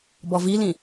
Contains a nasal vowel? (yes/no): yes